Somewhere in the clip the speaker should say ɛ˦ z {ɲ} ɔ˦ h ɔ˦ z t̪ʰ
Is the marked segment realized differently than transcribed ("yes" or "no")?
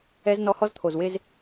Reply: yes